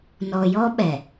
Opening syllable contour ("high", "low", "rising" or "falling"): low